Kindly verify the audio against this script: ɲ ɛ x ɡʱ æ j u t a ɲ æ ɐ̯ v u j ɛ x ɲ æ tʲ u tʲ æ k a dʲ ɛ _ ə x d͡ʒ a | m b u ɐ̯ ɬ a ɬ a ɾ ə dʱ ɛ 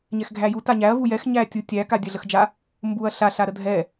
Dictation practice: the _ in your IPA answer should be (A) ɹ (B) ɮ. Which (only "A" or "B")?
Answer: B